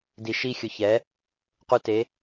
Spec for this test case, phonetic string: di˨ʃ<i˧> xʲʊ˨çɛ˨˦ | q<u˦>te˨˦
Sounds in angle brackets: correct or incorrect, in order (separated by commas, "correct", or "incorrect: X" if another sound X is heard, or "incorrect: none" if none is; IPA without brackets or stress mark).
correct, incorrect: u˧